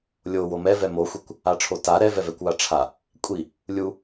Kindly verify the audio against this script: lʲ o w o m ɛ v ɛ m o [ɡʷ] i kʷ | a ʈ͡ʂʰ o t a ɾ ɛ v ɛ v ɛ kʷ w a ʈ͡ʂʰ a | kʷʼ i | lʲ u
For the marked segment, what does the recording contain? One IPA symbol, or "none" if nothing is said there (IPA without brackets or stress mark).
xʷ